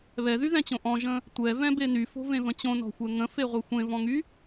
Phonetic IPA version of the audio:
β ɛ ð y ð ɛ̃ t͡ɕ õ ʔ ɔ̃ ʒ ə̃ | tʷ ɛ v ɛ̃ b e n y f o̤ v ẽ v ə̃ t͡ɕ õ n ɔ̤ xʷ ɛ ŋ ə̃ f e ʁʷ e xʷ ẽ v ɔ̃ ŋ y

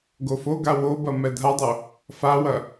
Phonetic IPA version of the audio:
ɡ o f o ɡ a w o b ɐ m ɛ dʱ a dˤ o | f a w ɐ

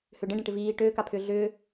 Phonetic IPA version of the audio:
h ʏ ɖ ə̃ ɖ ə̃ ʈ ɪ v iː ʈ øː k a pʰ ʏː ɮ ʏː

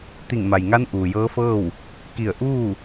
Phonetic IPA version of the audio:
t̪ i˧˩ ŋ m a˩ j ŋ a˧˥ n ʔ uː˩ j ɤː˧˥ f ɤː˥˨ w | k i˧˩ ə̯ ʔ uː˥˨

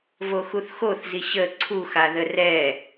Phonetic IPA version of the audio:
v o x u θ x o θ z i ɕ ə ǀʰ u x a ð ə r ɛ

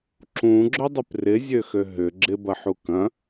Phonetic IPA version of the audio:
ǁ ũ ɡ͡ǁ ʏ dˤ ɪ p r ɪ zʲ ø x ø ɦ ʏ ɡ͡ǁ ɪ b ɐ ħ u k ɐ̃

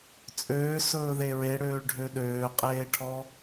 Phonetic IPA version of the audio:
t͡sʼ øː s ɵː ð e ɹ e ɽ øː ɭ ɖʱ ø ɗ øː qʼ eː ʈʰ ɔ

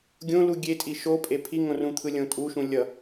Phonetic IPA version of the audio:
ɡʲ õ l u ɡʲ e tʼ i ʃ o pʼ e pʰ i ŋ õ r ũ t̪ʰ ɯ lʲ õ tʼ u ʃ ũ lʲ ʌ

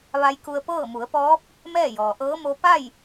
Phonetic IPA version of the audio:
ʋ a˧ j k u˧ ə̯ p ɤː˥˨ m u˩˧ ə̯ p ɔː˧˥ p̚ | m ɛː˥˨ j ɔː˩ ʔ ɤː˧˥ m o˧ p a˥˨ j

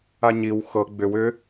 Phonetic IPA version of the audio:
a ɲ i w x ɤ ɡ͡b ʏ w ʏ

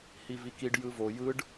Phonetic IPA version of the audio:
h i v i k i ɖ j ɯ v o j ɯ ɖ

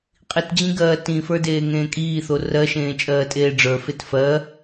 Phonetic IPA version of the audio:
qʼ i t d͡ʑ ĩ ɡ ɜː t ĩ f ə˞ d eː ŋ ẽː kʼ iː θ o r ɜ ʃ ẽː t͡ʃʼ ɜː tʼ eː ɖ͡ʐ ə˞ f e t f ɜ

